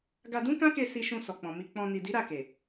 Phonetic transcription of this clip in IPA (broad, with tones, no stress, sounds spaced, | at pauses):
ɡ a˧ d ũ˦ k ã˦ k e˧ s i˧ ʃ ũ˧ s ɔ˨ k͡p ɔ̃˨ m i˧ k͡p ɔ̃˧ n i˨ d i˨˦ ɾ a˦˨ k e˨